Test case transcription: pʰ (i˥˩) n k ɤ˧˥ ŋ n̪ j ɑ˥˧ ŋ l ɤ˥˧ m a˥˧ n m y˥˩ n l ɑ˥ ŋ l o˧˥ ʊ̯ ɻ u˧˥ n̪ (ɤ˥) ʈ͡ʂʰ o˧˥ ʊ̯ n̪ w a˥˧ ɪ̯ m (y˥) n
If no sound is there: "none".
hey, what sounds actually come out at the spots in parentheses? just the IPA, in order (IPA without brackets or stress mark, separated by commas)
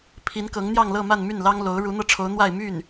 i˧˥, ɤ˥˩, y˥˩